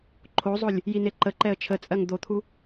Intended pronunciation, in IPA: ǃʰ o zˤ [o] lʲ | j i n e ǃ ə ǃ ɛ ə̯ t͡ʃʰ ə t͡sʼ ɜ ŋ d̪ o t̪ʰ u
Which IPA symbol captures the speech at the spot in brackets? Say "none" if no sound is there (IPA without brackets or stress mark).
o